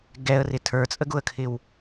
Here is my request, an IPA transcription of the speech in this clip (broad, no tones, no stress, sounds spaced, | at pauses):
ɡ ɛ ə̯ r ɪ tʰ ə˞ t͡sʼ ə ɡ ʊ ə̯ kʰ ɪ w